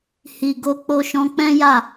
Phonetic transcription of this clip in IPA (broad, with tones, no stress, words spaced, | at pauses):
hi˨ɡo˧ k͡po˧ʃɔ̃˧k͡pɛ̃˦ ja˦˨